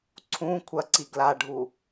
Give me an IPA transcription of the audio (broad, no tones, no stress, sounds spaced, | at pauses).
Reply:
ǀʰ ũ kʷʰ ɐ ǀ i ɡ l a ɖʱ u